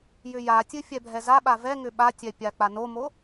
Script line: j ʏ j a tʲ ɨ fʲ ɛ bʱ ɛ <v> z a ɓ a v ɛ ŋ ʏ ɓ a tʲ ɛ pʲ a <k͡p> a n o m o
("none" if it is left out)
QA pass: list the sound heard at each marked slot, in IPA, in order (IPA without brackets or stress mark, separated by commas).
none, k͡p